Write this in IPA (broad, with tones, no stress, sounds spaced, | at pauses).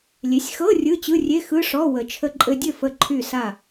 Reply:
lʲ e˩˥ sʲ x ɤ˧˥˧ rʲ ɯ˧˥˧ t͡ɕ ɯ˧˥˧ rʲ e˧˥˧ x ɯ˧˥˧ ʂ ɔ˧˥˧ w ə˨˩˦ t͡ʃʰ ə˧ ǃʼ ɘ˧ dʲ ɘ˥˨ f ə˥˨ ǃʰ y˥˨ s a˥˨